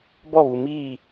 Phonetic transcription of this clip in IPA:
b ɔ˦˨ β u˨ m iː˦˨

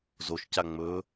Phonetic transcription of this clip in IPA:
z o ʃ c a ŋ͡m ɵ

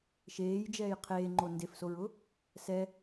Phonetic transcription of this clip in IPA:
ʃ eː j d͡ʒ ɛː j qʰ eː ŋ͡ǃ o n d e f s o ɹ ʊ | s ɛ

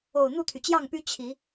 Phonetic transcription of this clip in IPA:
o˨˩ ʊ̯ n̪ u˥˨ t̪ʰ y˩ t͡ɕ j ɑ˥˨ ŋ p y˦ t͡ɕʰ i˨˦

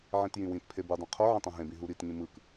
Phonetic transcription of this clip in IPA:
ʕ ĩ t j ĩ w ĩ t pʰ e b ɯ dˤ ĩ qʰ o ʕ ĩ tˤ õ ɦ ẽ b ĩ ɦ u ɾ i t ŋ ĩ m ɯ k

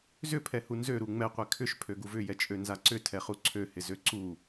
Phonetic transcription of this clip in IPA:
z ʏ pʰ ɛ h u n z ø ɾ u ŋ͡m ɛ qʷ ɛ kʰ ʏ ʃ pʰ ø ɡ u v ʏ j ɛ t͡ʃʼ ø n z a ǀ ʏ tʰ ɛ χ u ǀʰ ø h ɪ z ø ǀ u

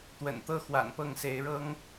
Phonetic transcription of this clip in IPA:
t̪ w ə̰˨˩ n t̪ ɤ˥ x w a̰˨˩ n p ɤ˥˩ ŋ s e˧˥ ɪ̯ ɻ ɤ˥ ŋ

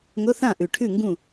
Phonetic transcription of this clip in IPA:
ŋ ʊ˧˥˧ θ ã˥˨ ʔ ʉ˨˩ ʈʰ ʉ˥˨ ŋ ɡ ũ˥˨

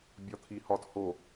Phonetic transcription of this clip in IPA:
bʲ ɒ t̪ʰ i h ɒ t h o

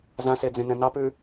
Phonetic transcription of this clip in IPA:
z ã s e d͡z ẽ n ɛ̃ n ɑ p ʉ

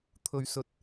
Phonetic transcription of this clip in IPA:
t̪ʰ ɵ˧ ɥ s ɵ˧ t̚

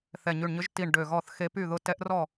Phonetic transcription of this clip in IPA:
θ ɛ˧˩ ɲ y˧˩ ɳ ɲ ʏ˧˥ ʒ t i˧˩ ɳ ɖ ø˧˩ ɣ ɔ˥˩ θ x e˧ p y˥˩ ð ʊ˧ t ɛ˧˥ ʔ r ɔ˥˩

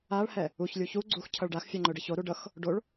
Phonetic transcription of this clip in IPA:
a ɭ h ɛ | u ç lʲ u ç u ɡ͡ǀ u x cʰ ʌ ɭ ɖ a x fʲ a ŋ͡ǃ ɵ ɖ ʌ ç o ɾ u ɖ ʌ x | ɖ o ɭ

